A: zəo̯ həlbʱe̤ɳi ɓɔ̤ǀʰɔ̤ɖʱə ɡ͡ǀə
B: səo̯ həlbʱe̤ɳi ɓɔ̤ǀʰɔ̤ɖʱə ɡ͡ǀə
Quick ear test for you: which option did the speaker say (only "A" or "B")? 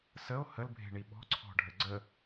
B